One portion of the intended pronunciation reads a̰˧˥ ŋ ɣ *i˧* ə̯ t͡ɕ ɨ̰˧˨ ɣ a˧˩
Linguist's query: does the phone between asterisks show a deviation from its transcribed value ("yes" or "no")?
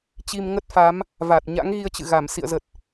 no